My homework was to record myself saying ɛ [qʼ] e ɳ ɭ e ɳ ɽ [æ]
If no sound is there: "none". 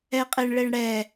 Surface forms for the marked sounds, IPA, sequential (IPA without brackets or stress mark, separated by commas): qʼ, ɛ